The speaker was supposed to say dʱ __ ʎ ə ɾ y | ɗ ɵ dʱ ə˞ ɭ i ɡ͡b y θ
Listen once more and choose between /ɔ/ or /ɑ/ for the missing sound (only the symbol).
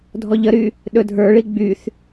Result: ɔ